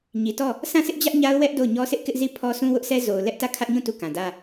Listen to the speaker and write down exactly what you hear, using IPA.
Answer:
ɲi˨tɔ˦˨ | sʰã˦˨sʰɪ˦ʔd͡ʑä˦ʔ ɲa˦ʊ̯wɛ˦ʔ do˦˨ʊ̯ɲɔ˦ sʰɪ˦ʔkɪ˦ʔ zi˦˨pʰɔ˦ sʰũ˦wʊ˦ʔsɛ˦ zo˨ʊ̯ lɛ˦ʔtä˦˨ kʰä˦ʔɲũ˦˨ tu˦˨kã˨dä˦

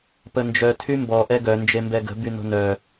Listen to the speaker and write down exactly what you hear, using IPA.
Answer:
pənd͡ʒœ tʰymbɔ ʔɛɡœ nd͡ʒembɛɡə̤ byno̤nœ

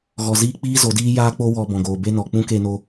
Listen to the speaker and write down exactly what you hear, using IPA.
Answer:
ɣɔ˧ziː˦k͡piː˦ zo˨˦diː˦jaː˦k͡po˦ wɔ˧bɔ̃˨ ɡoː˨be˦nɔ˨ k͡pũ˦ke˧no˧

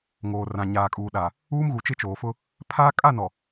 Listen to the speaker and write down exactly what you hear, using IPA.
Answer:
ŋoː˨ rã˨ɲaː˨kʼuː˨ɗa˨ | uː˦mɣu˨ t͡ʃɪ˦t͡ʃoː˨fʊ˦ | pʰaː˦ kʼa˦˨nɔ˨

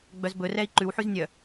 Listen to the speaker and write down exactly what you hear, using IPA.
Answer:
ɡ͡bœzbɵ rɛi̯ǃʉw ħyznʲœ

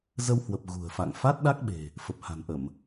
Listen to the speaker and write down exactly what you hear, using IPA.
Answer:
zə˧whwə˨˩p̚ ɣṳ˨˩ə̯fa̰˧˨ŋ fa˦˥t̚ɗa˦˥k̚ɓe̤˨˩ | fə˨˩p̚ha̤˨˩nʔə˧˩˨m

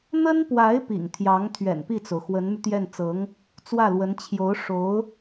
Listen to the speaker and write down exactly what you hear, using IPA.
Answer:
n̪ə˥npwa˧˥ɪ̯ pḭ˨˩ŋt̪ʰjɑ˧˥ŋ t̪ʰɥɛ̰˨˩npi˥˩t͡so˩ʊ̯ xwə˧˥nmy˧t̪jɛ˥˩n t͡sɤ˧˥ŋ | t͡swä˥˩lwə˧˥n t͡ɕʰjo˧˥ʊ̯ ʂo˧˥ʊ̯

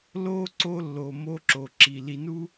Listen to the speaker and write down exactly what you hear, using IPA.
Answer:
lo˦ ǀo˦lːo˧mo˦ ǁo˧ǁi˧ li˧nu˦

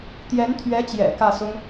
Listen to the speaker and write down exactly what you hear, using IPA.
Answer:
t̪jɛ˧˥nt̪ʰɥɛ˧˥t͡ɕjɛ̰˨˩ kä˥˩sʊ˥ŋ

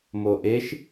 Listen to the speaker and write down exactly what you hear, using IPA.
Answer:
moʔeʃ

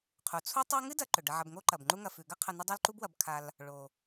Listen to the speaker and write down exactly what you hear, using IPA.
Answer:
qʰu˩t͡sʰu˦ tˤa˦ŋɨ˥ dɐ˦ǃɵ˩ ɖɐ˨ʕɐ˨bŋo˦ǃɐ˩b ŋ͡ǃu˦ŋɐ˨fʉ˩ ɡɐ˥qʰɐ˨ nɐ˦dˤo˦lǃu˦bwɐ˨b kʰa˨l | ɭo˩

